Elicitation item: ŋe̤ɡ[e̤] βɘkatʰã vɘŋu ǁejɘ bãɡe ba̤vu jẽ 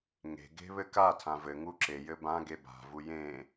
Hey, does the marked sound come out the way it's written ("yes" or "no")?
yes